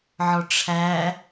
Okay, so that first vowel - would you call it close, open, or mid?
mid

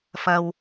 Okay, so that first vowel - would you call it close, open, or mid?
open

